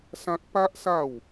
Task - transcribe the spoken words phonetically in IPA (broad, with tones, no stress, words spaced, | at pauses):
sã˦k̚ pa˦ʔsa˥˧w